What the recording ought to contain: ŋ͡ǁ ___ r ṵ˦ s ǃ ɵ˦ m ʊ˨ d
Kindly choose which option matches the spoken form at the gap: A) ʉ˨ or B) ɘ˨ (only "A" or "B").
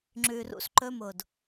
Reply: A